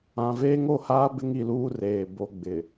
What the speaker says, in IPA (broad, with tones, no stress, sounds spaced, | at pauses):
ã˨ v eː˦ ŋ o˦˨ h aː˦ b ɪ˦ ŋ i˨ l uː˦ r eː˨ b o˨ ɡ͡b ɪ˨